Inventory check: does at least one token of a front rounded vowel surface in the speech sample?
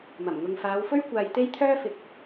yes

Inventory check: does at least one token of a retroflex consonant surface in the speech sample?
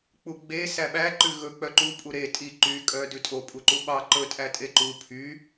no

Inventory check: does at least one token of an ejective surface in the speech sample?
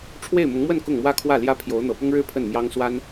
no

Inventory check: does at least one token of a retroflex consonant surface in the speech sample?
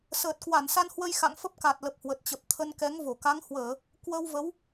no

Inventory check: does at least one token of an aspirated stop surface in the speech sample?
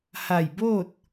no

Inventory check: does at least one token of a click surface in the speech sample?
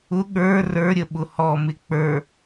no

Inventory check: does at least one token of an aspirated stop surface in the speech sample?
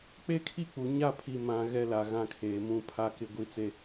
yes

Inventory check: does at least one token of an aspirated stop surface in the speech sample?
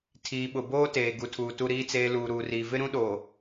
yes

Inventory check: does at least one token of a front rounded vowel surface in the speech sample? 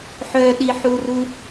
yes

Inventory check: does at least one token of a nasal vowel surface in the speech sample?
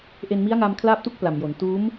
no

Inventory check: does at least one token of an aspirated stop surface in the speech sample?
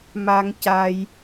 no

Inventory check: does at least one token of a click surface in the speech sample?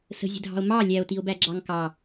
yes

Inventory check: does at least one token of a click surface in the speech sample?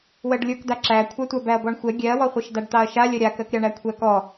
yes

